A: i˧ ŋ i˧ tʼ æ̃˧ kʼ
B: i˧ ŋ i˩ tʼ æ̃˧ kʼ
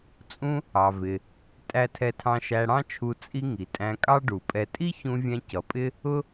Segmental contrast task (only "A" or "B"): B